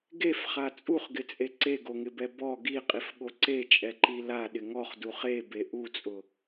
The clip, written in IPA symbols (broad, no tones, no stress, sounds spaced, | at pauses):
ɡ e f χ a t͡sʼ u χ ɡ ɪ t͡sʼ e ǀ e ɡ o ŋ ɪ b ɛ b ɔ ɡ i qʼ i f ɠ o ǀ e t͡ʃʼ ɛ ǃ i l a ɗ ɪ ŋ ɔ χ d u χ e b e ʔ u t͡sʼ ʊ